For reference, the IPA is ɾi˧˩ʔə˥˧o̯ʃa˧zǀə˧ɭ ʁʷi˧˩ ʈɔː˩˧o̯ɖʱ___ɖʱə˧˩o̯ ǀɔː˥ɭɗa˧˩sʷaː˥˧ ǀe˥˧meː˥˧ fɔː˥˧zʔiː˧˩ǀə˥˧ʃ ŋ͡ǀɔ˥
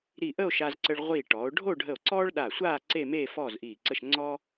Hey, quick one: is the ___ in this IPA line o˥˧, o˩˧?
o˥˧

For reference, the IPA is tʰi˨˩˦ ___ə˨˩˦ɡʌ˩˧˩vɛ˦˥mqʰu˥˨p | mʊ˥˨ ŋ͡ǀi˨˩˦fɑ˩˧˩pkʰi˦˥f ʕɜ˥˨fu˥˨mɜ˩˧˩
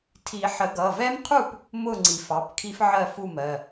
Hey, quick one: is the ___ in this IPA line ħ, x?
ħ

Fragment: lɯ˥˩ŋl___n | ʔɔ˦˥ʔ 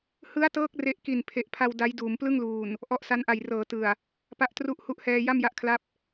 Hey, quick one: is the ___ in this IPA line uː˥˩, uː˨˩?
uː˨˩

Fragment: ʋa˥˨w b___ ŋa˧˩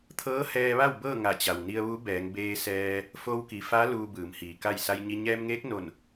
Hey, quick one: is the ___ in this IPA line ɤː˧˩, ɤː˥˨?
ɤː˥˨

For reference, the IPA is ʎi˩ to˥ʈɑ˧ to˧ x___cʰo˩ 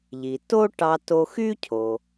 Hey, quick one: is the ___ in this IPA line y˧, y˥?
y˥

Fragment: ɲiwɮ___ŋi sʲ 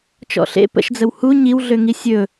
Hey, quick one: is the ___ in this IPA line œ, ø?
ø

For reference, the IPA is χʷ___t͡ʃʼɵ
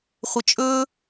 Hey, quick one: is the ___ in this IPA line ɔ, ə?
ə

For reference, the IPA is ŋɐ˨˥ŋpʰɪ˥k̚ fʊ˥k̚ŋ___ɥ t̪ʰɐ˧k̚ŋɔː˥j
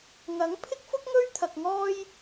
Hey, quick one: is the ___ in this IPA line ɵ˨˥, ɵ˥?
ɵ˥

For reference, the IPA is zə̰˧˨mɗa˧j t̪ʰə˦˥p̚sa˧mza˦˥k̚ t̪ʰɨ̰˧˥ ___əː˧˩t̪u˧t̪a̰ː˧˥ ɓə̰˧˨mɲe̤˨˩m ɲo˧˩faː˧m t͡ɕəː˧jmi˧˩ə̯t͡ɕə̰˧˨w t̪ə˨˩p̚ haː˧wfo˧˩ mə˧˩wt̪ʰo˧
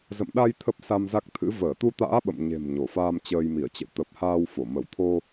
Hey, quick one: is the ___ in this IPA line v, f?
v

